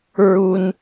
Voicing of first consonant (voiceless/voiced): voiced